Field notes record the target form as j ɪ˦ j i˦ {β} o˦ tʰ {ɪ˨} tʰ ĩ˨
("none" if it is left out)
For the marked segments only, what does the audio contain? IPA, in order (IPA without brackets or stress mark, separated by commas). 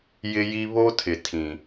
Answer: β, ɪ˨